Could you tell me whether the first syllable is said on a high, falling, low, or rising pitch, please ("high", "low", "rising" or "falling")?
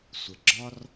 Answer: low